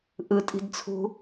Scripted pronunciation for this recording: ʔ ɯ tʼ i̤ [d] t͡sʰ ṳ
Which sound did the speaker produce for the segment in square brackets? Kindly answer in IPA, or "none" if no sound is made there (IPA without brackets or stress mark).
d